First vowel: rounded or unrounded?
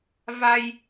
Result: unrounded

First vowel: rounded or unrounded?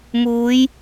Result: rounded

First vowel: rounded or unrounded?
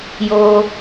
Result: rounded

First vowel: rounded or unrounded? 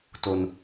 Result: rounded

